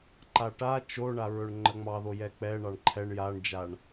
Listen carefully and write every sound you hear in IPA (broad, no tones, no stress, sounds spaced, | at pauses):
ǃ a ʈ a t͡ʃ o ɳ a ɹ ɵ ɳ ŋ͡ǃ ə ŋ͡m ɑ ð o j ɛ k͡p ɛ ɳ ɑ ɳ ǃʰ ɛ ɳ j a ɳ d͡ʒ a ɳ